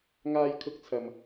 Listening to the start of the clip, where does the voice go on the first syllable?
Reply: high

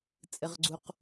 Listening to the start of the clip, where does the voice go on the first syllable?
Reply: low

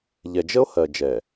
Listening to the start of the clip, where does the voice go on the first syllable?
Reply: low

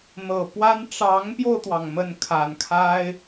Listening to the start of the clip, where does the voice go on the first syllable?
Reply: low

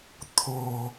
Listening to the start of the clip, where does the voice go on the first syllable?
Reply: low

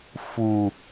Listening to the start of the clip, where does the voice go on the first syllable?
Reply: low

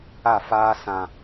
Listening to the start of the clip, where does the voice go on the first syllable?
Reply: falling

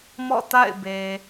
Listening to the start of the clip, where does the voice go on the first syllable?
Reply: falling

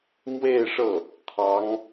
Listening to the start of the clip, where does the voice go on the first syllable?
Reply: falling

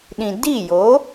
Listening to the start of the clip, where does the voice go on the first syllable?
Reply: low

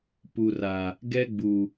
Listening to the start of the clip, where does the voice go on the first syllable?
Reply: low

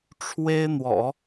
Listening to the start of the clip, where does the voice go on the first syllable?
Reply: high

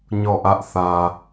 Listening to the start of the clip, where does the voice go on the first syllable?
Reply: falling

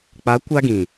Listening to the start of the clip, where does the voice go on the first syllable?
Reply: rising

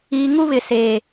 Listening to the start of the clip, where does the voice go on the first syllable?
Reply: low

